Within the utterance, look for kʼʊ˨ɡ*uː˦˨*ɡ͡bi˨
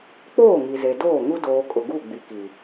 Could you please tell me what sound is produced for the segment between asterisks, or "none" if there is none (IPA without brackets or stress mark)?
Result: u˦˨